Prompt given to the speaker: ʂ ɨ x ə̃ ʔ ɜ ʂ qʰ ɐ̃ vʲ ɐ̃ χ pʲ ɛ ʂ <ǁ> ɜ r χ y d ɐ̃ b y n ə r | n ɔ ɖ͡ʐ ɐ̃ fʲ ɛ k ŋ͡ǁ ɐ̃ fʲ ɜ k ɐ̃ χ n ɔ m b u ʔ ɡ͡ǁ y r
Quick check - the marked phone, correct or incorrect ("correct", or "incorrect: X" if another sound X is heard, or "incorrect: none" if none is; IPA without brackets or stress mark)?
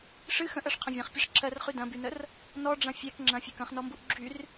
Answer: correct